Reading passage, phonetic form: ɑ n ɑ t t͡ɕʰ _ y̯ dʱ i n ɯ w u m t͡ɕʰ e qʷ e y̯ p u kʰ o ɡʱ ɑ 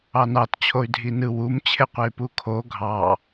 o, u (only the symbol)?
o